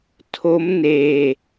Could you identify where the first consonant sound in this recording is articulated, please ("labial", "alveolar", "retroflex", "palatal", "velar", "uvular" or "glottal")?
alveolar